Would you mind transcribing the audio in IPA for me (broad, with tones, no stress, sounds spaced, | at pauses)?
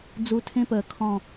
d͡z u˧ tʰ ẽ˦˥ p əː˨˩˦ kʰ ɔ̃˨˩